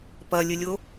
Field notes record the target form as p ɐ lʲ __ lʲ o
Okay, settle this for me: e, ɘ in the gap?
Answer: ɘ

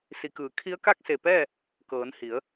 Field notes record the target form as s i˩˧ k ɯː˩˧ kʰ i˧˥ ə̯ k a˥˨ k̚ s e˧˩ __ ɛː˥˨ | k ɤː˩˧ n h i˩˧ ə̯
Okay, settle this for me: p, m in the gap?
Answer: p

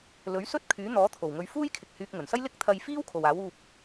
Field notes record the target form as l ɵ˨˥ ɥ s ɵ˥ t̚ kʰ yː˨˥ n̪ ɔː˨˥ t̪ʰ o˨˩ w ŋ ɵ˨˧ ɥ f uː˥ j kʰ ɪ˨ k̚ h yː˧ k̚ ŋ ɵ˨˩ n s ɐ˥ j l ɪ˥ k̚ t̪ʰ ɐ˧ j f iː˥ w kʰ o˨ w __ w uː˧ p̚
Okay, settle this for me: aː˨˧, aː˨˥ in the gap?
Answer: aː˨˥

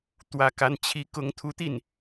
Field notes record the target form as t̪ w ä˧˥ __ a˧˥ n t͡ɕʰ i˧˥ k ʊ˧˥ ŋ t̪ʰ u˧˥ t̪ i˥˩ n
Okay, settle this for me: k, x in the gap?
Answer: k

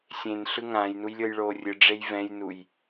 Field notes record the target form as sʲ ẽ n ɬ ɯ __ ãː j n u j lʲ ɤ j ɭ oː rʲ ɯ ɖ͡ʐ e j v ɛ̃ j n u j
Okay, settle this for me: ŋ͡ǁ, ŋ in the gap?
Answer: ŋ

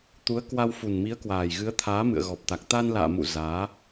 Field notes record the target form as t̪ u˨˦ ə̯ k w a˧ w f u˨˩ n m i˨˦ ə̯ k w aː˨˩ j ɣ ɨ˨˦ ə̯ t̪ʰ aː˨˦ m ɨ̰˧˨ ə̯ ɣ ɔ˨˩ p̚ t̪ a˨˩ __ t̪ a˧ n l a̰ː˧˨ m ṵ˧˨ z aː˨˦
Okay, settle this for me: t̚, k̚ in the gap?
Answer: k̚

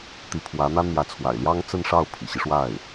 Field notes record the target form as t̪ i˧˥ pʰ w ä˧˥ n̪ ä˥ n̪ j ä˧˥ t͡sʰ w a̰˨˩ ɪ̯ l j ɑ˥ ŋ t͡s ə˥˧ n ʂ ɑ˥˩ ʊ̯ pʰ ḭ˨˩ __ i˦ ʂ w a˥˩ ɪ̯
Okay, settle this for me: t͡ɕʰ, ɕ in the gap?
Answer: ɕ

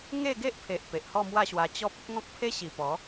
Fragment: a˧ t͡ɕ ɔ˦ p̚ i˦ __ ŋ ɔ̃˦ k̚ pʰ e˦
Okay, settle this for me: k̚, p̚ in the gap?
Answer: k̚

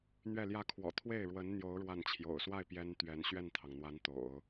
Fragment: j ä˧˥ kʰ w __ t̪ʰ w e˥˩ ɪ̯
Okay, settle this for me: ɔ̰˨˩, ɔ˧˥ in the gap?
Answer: ɔ̰˨˩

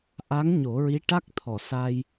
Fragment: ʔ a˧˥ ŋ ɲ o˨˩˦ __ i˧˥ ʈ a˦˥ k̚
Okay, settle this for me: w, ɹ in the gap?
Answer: ɹ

